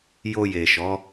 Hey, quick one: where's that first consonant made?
palate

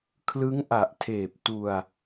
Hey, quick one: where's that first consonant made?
velum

